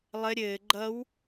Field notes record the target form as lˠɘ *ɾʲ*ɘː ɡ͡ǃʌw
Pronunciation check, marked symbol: correct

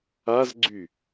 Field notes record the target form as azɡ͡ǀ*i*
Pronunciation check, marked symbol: incorrect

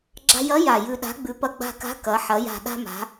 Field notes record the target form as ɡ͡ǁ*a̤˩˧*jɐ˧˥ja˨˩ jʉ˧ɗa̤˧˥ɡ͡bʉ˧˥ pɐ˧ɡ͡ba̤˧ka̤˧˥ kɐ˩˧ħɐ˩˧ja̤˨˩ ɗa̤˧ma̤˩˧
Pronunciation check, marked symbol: incorrect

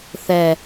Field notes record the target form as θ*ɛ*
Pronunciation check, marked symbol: correct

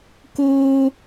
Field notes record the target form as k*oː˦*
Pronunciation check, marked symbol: correct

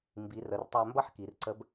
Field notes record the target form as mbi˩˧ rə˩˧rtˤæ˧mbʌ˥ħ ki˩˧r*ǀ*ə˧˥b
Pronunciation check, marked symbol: correct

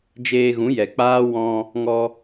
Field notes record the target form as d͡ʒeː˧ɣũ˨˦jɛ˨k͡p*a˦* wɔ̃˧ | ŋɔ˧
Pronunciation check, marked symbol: incorrect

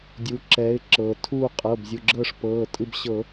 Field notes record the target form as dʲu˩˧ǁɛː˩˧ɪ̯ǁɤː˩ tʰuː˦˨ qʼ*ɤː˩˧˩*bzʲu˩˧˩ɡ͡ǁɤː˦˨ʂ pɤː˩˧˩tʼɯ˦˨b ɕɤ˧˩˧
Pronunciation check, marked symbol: correct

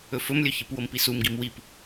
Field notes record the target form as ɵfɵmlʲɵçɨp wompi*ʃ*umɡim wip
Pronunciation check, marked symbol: incorrect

